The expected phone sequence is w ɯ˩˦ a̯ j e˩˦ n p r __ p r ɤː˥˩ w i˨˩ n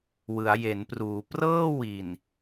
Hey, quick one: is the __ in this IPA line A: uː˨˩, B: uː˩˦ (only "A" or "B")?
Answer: B